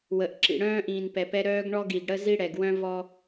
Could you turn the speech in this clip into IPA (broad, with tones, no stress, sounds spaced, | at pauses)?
w ə˨ ʔ ǁ ḭ˨ ɽ œ̃ː˦ ʔ ĩː˨ n p ɛ˨ p ɛ˦ ɾ œː˦ ɡ ɳ ɔ˦ ɡ i˨ ɡ ɽ ə˦ z i˦ ɽ ɛ˨ ɡ w œ̃˦ v ɔ˦